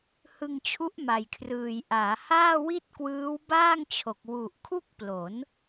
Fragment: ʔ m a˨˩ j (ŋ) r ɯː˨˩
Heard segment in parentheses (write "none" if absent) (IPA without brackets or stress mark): kʰ